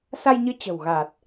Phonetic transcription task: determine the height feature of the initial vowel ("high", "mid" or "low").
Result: low